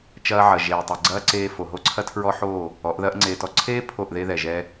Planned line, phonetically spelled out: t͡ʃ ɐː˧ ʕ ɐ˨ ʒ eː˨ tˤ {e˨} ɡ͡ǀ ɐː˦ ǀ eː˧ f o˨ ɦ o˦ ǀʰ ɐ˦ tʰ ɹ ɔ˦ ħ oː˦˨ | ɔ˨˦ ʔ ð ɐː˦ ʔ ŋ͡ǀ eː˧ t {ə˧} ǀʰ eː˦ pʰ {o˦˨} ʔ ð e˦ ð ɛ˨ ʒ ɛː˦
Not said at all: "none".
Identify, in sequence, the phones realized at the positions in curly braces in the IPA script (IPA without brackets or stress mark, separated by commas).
e˨, ɔ˧, o˦˨